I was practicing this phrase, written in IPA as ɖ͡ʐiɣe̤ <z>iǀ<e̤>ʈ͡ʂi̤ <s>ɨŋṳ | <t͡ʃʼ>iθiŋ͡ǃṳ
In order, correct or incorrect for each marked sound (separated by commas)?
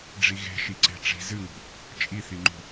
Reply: incorrect, correct, incorrect, correct